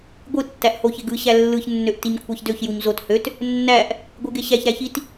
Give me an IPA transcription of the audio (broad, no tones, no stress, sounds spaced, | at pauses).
ɡʷ ɯ tː æ ʔ h o ç e ɡ ɯ ɕ æ lː ɯ ç nː ø ʔ t i ɲ kʷʰ ɑ ç d ø ç j u ɲ z o t h ø t | nː æ ʔ | ɡʷ ɯ ɡ e ɕ æ ç ɾ æ ç i t